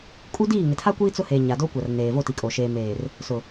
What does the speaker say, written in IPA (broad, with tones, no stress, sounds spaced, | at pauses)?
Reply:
kʼ u˦ d iː˦˨ ŋ ɪ˨ tʰ a˦ kʷ iː˦ t͡s ʊ˦ h e˨ ɲ a˨ d o˦ kʷ a˨ r n eː˨ v o˦˨ t i˨ kʼ o˨ ʃ eː˨ m eː˨ r | s ʊ˨